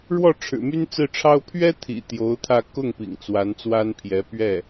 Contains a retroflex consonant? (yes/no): yes